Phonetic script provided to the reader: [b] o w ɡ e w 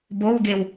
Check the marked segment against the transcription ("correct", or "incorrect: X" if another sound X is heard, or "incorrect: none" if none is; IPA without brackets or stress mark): correct